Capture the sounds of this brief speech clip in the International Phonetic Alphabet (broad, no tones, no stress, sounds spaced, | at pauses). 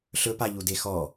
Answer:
ɬ ɵ p a ʎ u d e x ɔ